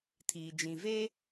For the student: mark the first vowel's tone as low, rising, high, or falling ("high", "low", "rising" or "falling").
low